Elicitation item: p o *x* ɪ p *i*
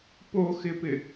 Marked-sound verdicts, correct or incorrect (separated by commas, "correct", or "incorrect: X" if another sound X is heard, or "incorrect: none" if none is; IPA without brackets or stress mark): correct, incorrect: ɪ